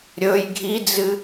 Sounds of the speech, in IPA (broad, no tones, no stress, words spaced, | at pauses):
ɾʲɵj ɡʱid͡zɨ